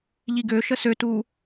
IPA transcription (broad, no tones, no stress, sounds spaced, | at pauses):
ʎ i ɡ ø ʃ ə s ø t u